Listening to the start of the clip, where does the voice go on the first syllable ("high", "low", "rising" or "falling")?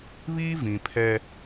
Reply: high